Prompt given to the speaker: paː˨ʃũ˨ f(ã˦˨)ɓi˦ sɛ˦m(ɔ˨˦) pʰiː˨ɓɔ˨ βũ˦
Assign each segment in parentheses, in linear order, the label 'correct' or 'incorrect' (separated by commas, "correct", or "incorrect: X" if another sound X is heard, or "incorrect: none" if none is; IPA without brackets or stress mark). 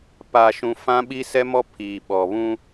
incorrect: ã˦, incorrect: ɔ˦